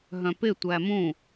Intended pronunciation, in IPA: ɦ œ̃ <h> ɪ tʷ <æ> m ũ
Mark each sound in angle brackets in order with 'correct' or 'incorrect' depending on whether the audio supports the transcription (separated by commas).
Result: incorrect, correct